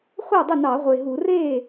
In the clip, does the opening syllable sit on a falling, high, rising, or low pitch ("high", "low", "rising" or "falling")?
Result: falling